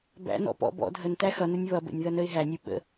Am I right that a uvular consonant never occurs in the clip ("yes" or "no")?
yes